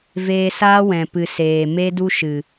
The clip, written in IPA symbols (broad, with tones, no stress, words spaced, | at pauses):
veː˧saː˦wɛ̃˨ pɨ˨ seː˨ me˦du˦ʃɨ˨